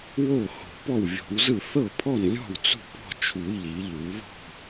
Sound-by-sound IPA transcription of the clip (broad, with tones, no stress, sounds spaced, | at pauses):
w o˥˩ h o̤˨˩˦ p ɔ˥˩ w vʲ o̤˨˩˦ w z ɯ˥˩ θ ɤ˥˩ pʰ ɔ˥˩ n lʲ ɔ̤˥˩ w t͡s ṳ˥˩ p ɔ̤˥˩ t͡ʃʰ u˨˩˦ ʎ i˨˩˦ ʎ u˨˩˦ ð ɔ̤˥˩